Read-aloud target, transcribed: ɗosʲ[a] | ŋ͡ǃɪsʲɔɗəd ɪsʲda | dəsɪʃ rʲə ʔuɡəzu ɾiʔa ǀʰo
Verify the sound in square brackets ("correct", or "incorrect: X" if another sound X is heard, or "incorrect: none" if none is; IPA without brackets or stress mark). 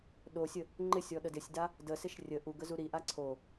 incorrect: ə